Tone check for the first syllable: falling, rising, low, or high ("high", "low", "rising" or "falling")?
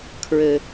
low